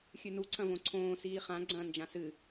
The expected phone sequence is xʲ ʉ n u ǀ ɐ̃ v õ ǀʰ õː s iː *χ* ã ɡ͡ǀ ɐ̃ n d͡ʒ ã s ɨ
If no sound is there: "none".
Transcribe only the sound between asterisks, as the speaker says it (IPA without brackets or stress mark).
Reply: χ